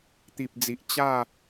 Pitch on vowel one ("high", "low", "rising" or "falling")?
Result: low